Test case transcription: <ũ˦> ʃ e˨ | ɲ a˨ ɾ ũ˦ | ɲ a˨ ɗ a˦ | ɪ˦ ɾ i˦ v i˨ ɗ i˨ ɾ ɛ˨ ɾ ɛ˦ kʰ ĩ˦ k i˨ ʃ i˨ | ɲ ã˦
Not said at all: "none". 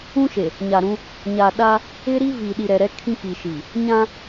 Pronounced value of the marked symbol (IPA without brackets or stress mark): ũ˦